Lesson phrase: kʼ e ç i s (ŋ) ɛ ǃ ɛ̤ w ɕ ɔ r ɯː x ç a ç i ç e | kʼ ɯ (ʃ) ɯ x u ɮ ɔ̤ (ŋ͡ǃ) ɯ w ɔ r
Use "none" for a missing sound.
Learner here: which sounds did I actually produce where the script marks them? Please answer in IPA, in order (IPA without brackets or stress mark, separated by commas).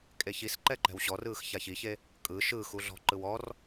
ǃ, ʃ, ǃ